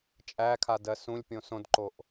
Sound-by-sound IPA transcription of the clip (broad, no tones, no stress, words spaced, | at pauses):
t͡ʃʼækʰadɜ sũlʲpʲõ sõdǃoʔ